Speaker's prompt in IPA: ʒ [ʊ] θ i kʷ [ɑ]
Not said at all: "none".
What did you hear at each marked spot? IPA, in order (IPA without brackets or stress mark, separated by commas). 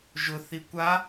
ʊ, a